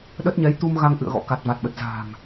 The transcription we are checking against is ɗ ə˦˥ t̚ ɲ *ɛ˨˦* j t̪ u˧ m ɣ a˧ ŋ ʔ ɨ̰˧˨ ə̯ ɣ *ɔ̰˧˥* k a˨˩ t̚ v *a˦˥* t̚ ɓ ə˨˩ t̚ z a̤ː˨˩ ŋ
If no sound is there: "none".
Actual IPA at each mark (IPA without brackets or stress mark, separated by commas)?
ɛ˨˦, ɔ̰˧˥, a˨˩